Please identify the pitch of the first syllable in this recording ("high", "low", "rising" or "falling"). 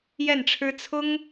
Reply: falling